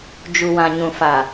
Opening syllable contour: low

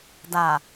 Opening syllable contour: low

